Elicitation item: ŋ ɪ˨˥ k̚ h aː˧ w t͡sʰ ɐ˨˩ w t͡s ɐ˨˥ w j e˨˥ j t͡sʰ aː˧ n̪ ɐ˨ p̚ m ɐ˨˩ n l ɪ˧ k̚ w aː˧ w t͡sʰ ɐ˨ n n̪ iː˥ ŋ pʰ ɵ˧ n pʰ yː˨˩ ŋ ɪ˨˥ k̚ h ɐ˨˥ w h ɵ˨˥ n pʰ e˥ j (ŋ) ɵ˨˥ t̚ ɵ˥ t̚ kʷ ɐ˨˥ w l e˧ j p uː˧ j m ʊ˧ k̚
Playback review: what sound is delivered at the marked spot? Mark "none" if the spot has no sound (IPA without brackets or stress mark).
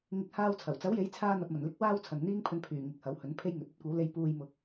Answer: ŋ